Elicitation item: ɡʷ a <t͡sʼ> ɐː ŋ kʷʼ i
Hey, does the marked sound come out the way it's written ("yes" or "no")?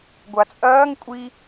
yes